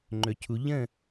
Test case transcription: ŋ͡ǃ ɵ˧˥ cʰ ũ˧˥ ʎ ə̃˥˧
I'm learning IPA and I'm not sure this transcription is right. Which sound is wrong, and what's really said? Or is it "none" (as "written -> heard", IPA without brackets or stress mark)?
ũ˧˥ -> u˧˥